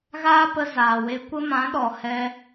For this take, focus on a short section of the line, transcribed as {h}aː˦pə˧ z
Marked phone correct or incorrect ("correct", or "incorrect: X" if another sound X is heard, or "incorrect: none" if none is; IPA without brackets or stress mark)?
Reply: incorrect: ɣ